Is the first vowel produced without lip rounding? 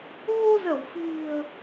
no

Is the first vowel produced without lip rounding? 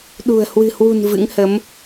no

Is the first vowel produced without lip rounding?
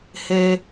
yes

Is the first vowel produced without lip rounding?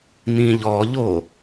yes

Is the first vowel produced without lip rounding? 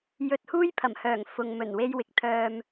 no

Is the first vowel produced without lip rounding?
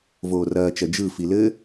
no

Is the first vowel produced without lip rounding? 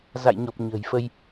yes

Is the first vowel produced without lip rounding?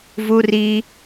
no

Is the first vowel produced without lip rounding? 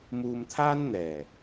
no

